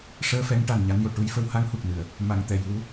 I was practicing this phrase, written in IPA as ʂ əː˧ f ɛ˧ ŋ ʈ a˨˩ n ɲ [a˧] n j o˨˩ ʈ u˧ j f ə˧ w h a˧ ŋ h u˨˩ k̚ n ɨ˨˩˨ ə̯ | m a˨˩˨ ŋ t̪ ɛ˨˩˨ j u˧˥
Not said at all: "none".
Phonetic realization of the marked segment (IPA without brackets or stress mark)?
a˧